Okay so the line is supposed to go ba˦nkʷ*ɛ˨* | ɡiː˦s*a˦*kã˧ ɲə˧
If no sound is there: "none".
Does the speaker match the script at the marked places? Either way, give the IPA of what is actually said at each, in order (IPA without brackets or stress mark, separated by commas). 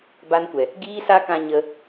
ɛ˨, a˦